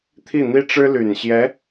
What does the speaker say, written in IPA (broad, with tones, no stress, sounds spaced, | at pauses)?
t̪ʰ i˥˩ n̪ i˥ ʈ͡ʂ ɻ̩˥ l y˨˩ n ɕ j ɛ˧˥